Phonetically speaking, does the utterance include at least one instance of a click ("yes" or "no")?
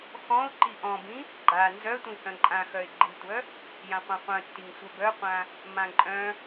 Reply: yes